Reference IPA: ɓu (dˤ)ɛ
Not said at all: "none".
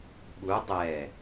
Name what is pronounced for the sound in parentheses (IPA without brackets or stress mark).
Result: dˤ